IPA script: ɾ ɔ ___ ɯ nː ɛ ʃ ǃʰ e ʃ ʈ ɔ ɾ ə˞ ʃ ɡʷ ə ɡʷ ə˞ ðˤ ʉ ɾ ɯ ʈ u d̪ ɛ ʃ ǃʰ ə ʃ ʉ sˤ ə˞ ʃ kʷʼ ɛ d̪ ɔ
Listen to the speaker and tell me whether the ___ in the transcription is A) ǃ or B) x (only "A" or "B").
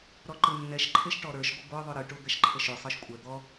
A